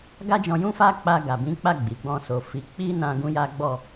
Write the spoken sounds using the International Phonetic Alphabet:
ɡ a˦ d͡ʒ ɔ̃˧ j ũ˦ f a˦ k͡p a˧ ɡ a˨ b ĩ˨˦ k͡p a˦˨ ɡ͡b i˨ ɡ͡b ɔ̃˧ s o˨ f i˨˦ k͡p i˦ n ã˧ ɡ ũ˦ j a˦ ɡ͡b ɔ˦˨

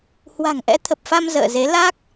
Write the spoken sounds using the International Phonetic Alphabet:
h w a̤˨˩ ŋ ʔ ɛ̰˧˥ t̪ʰ ə˨˩ p̚ f a˧ m z ə̰ː˧˨ z e˨˦ l a˦˥ k̚

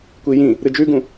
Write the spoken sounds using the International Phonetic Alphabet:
kʷ i j ĩ | ɾ ɨ d͡ʒ ʉ ɡ ũ

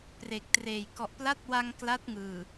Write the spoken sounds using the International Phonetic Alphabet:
p r e˨˩ k̚ t r eː˨˩ j k ɔ˨˩ ʔ p l a˦˥ t̚ w a˧ ŋ k l a˦˥ t̚ ŋ ɯː˨˩

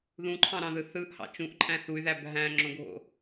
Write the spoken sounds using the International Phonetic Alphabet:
ð ũ ǃʰ ɑ̃ ɾ ɑ̃ ð ɯ θ ɯ ʔ h ɑ̰ t͡ʃ ũ ʔ ǃʼ æ̃ θ u y̯ ð æ b ɦ æ̃ ŋ͡ǁ õ ɡʱ o̰

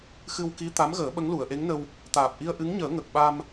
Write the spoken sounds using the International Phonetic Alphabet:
x ɨ˧ w k i˧˥ t̪ a˧˥ m ɣ əː˨˩˦ ɓ ə˧˥ ŋ l u˨˩˨ ə̯ ʔ e˧˥ ŋ n ə˧ w | t̪ aː˨˩ p̚ ʔ i˧ ə̯ ʔ ɨ˧˥ ŋ ɲ əː˨˩˦ ŋ ə˨˩ k̚ ɓ a˧ m

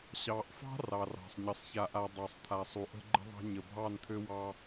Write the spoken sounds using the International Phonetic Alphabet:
ɕ ɑ˨ ʔ f ɑ̤˦ r ɑ˨ r ɑ̤˨ sˤ ɲ ə˨ sˤ ç a˨ ʔ a˨ dˤ ɑ˨ sˤ t̪ʰ a˨ sˤ u˨ ʔ ə̤˦ ɡ͡ǃ ə̤˦ ðˤ ɑ̤˦ ɲ ə˨ bʱ ɑ˦˨ n t̪ʰ ø˦ w ɑ˦

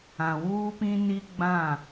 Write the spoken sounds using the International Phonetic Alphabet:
ã˨ w uː˦ p ĩ˦ n i˦ ɡ͡b ã˦˨

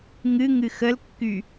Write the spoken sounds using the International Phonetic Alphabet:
ŋ ɨ ŋ ɨ x ə l kː y

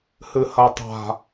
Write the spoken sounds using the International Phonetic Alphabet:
h ɨ h ɐ tˤ a̤

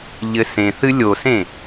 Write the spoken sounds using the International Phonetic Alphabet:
ʎ ɘ s ẽ θ ɨ lʲ o s ẽ

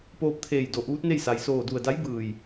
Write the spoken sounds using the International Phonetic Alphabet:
p oː˧ p̚ t̪ʰ eː˧˩ j d o˧˩ ʔ uː˧˥ t̚ n e˥˨ j s a˩ j s oː˧˩ d u˧˩ ə̯ d a˧˥ j b ɯː˧˩ j

